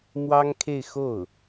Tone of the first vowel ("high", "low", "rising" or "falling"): high